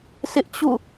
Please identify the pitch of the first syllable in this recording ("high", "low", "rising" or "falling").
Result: high